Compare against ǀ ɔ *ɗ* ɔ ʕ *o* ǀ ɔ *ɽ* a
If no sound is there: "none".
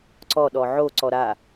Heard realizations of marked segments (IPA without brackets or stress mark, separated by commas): ɗ, o, ɾ